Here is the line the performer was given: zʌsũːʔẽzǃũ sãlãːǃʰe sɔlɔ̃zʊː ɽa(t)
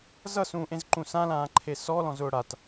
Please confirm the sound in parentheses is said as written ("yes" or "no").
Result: yes